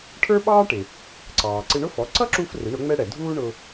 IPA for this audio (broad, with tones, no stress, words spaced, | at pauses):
ʈʰə˞˥ɓɑː˥ʈɪ˩ | ǀɑː˩ǀɪ˧ɳʊ˥fɔ˩˥ ǀʌ˥ǁu˧f rɪ˩˥ɳʊ˩˥ŋ͡mɛ˥ɽɛ˩ dʱuː˥ɳʊ˧